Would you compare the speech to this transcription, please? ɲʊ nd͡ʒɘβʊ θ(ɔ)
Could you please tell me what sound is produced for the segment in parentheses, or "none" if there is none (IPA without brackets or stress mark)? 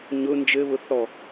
ɔ